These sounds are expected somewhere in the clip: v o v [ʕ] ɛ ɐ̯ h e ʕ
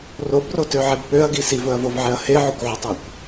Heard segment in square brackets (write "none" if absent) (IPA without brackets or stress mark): ʕ